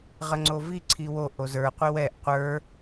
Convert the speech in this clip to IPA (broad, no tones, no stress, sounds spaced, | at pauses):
ʁ ə ŋ͡ǀ o v i ǀʰ i w o ʔ o z ə˞ qʷ i w ɛ ʔ qʷ ə˞